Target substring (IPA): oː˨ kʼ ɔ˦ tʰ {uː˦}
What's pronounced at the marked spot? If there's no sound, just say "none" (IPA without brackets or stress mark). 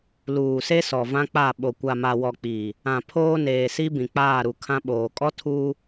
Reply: uː˦